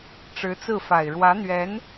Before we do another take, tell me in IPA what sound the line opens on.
ʈ͡ʂ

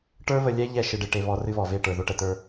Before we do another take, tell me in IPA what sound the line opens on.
ʈ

